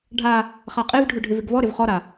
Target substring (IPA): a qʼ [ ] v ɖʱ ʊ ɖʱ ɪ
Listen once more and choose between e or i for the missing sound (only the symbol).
e